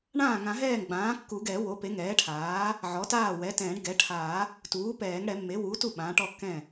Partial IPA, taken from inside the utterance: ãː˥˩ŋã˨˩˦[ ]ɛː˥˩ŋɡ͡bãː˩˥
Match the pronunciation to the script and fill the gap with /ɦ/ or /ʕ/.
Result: ɦ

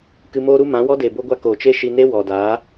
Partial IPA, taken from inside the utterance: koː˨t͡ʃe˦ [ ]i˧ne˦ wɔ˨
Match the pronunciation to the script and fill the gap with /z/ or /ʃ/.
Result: ʃ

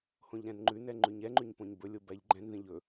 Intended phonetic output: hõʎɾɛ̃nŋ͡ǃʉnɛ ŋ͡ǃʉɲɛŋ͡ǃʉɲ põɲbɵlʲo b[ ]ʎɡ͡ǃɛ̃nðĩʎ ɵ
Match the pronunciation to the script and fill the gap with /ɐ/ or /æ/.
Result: æ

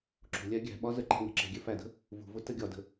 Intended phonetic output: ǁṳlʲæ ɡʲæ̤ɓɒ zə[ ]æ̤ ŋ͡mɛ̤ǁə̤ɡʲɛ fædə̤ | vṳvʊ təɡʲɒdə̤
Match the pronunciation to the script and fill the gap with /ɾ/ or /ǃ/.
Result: ǃ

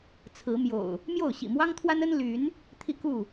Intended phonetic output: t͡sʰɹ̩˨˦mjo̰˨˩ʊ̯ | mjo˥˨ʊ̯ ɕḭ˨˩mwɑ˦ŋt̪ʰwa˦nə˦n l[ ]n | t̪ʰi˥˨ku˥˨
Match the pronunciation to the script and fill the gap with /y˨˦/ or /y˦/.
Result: y˨˦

